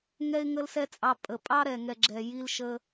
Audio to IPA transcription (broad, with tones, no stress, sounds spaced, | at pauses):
ŋ ɛ˦ ɪ̯ ŋ ə˦ l s ɛ˦ t͡sʼ ɑ˧ pʼ ə˨ pʼ ɑ˦ ɾ ɛ˨ ŋ ɛ˨ ɡ͡ǁ ɛ˨ j i˧ l ʃ ə˧